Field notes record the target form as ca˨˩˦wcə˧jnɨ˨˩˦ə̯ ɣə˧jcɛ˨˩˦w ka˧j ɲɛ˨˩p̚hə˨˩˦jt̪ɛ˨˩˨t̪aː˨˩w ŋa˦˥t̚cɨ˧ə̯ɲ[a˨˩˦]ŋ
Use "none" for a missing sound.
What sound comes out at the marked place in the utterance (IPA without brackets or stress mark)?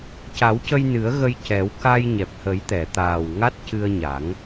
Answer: a˨˩˦